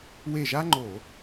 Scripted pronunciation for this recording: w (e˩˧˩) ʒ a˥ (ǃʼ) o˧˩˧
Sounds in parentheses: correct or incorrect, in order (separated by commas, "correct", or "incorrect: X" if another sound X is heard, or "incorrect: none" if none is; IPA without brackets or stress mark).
incorrect: e˧˩, incorrect: ŋ͡ǃ